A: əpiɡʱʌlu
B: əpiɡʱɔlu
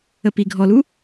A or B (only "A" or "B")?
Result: B